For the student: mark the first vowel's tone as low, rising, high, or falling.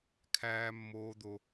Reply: high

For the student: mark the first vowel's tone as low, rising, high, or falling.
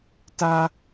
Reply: high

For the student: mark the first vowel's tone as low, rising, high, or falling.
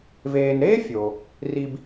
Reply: low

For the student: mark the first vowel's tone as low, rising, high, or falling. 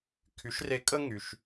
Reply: rising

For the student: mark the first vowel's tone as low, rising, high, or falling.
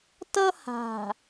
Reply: high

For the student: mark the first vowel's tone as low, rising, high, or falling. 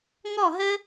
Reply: falling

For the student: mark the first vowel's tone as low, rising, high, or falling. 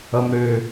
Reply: low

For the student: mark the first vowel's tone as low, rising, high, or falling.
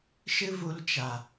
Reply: high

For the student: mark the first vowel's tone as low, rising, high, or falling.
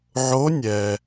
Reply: rising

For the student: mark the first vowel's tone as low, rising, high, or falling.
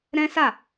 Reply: high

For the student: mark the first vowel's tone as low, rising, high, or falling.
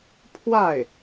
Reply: falling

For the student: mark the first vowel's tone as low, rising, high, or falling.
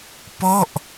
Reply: falling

